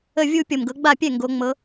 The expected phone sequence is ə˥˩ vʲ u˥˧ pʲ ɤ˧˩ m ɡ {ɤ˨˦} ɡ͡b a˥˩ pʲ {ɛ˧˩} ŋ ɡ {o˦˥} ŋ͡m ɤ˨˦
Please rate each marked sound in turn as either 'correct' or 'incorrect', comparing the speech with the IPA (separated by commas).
correct, incorrect, incorrect